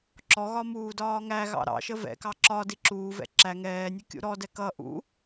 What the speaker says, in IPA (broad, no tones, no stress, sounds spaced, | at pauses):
ǁ ɔ ɣ ɒ m uː d ɒː ŋ æ ɣ ɑ̰ ɾ ɑ̰ ʃ ə v ɛ̰ k ɑ ǁ ɒ d i ǁ uː v ɛ̰ ǁ æ ŋ ɛː nʲ u kʲ ṵ ɾ ɔ d ɛ k ʌ ʔ ṵ